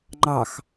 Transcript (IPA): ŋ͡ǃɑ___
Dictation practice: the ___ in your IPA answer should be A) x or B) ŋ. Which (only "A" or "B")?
A